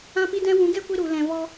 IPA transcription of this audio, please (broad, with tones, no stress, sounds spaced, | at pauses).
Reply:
ã˦ p i˦ d ɛ̃˦ w ũ˨˦ ɡ ɛ˦ kʷ i˧ ɾ u˨ l ɛ̃˨ v ɔ˧